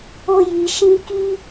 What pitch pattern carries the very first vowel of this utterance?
high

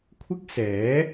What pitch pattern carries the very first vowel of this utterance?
high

